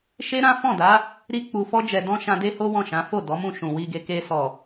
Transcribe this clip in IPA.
ʃ e˦ ɾ ã˦ f ɔ̃˦˨ d a˨˦ | ɾ i˦ k͡p u˧ f ɔ˦ d͡ʒ ɛ˧ d ɔ̃˦ ʃ ã˧ d e˦ h o˦ w ɔ̃˦˨ ʃ ã˨˦ f o˦˨ d ɔ˨˦ m ũ˦˨ ʃ ũ˨ w i˧ ɡ e˧ k e˧ s ɔ˨

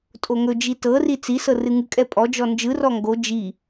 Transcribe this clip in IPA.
tʼ o ŋ ɵ d͡ʒ i t ɤ r i t͡s i s ɤ r ɨ ŋ ɨ kʼ ɛ pʼ ɔ d͡ʒ ɔ n d͡ʒ ɯ r ɔ ŋ ɡ o d͡ʒ i

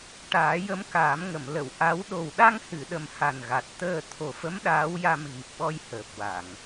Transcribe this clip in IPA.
ʈ aː˨˩˦ j ə˧˥ m k aː˨˩˦ m ŋ ə˨˩˨ m l ə˨˩˨ w ʔ a˧˥ w ɗ o˨˩ w ɗ a˧ ŋ h ɨ˨˩˨ ɗ ə˨˩ m h a˨˩ n ɣ a˨˩ t̚ t̪ əː˧ t̪ʰ o˨˩ f ə˧˥ m ɗ aː˧˥ w j a˧ m ɣ i˨˩ p̚ ɓ ɔ˧ j h əː˨˩ p̚ w a˨˩˨ ŋ

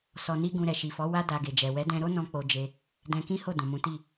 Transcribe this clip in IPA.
s ɔ˧ n i˦ ɡ ũ˧ ɾ ɛ˨ ʃ i˨ f ɔ˨˦ w a˦ d a˧ ɡ e˨ d͡ʒ ɛ˨ w ɛ˨˦ d ɛ̃˧ ɾ o˦ n ɔ̃˦ k͡p o˧ d͡ʒ e˧ | d ɛ̃˧ k ĩ˦ h o˦˨ d ũ˨ m ũ˨˦ t i˦˨

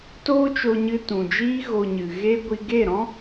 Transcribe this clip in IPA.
t oː˦ t͡ʃ o˧ ɲ ɨ˧ t ũ˨ d͡ʒ iː˦ ɣ o˧ ɲ ɨ˨ ɣ e˦ ɡʷ i˧ ɡ e˦˨ ɾ ɔ̃˦

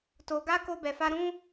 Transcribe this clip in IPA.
t o˧ ɡ a˦ k o˦ b ɛ˧ f a˦ ɾ ũ˦

